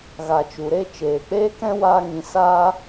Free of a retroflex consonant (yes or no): yes